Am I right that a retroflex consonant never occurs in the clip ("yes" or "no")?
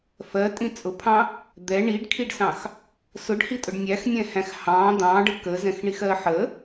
no